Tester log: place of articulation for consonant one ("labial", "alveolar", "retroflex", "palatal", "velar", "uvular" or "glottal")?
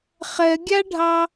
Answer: uvular